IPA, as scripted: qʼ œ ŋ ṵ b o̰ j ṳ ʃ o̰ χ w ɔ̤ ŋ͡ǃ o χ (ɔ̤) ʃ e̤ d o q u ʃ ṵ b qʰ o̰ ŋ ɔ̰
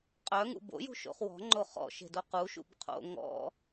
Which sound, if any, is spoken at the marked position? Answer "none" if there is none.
ɔ̰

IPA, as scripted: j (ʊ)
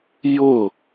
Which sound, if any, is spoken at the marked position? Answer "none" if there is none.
ʊ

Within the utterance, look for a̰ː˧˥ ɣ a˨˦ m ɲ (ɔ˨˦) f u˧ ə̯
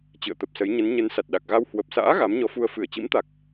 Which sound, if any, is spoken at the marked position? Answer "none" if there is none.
ɔ˨˦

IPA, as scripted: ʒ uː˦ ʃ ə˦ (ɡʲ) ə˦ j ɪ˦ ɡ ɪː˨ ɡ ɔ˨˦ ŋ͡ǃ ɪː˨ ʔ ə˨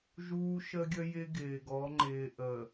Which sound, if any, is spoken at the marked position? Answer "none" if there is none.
ɡʲ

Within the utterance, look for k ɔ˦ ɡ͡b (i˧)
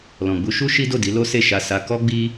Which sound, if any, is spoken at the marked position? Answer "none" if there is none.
i˦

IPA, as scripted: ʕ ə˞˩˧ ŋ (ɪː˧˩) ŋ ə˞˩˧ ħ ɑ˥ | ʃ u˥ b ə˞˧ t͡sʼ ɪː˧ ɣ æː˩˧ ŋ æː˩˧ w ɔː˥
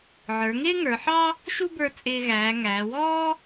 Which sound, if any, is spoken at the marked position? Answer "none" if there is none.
ɪː˥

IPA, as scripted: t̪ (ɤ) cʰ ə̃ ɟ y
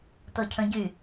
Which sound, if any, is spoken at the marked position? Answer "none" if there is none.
ɤ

